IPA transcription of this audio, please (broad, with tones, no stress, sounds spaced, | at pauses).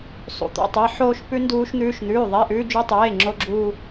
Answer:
sˤ ṵ˧˥˧ t̪ o̰˧˥˧ tˤ e˧˥˧ ħ oː˥ ʃ p ʉ˥ n d uː˥ ʃ n̪ ʉː˥ ʃ n̪ ʉː˧˥˧ ðˤ e˧˥˧ ʔ ʉː˥ d͡ʒ ʉ˥ tˤ eː˧˥˧ ŋ͡ǁ o˥ ɡ͡ǁ uː˥